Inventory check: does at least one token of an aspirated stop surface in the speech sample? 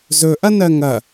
no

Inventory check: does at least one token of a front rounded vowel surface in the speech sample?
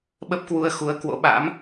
no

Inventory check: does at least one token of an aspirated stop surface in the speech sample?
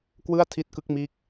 yes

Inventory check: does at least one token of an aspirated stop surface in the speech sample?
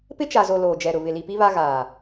no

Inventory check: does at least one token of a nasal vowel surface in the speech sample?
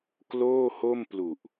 no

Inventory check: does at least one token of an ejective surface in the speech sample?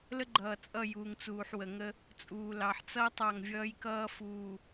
yes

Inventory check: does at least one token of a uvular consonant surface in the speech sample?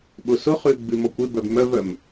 yes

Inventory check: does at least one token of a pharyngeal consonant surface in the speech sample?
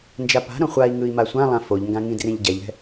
no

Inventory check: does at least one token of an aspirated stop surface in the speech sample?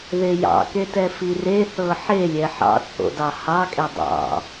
no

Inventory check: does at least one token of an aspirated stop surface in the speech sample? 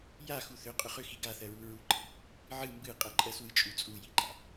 no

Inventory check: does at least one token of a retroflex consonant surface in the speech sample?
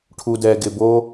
yes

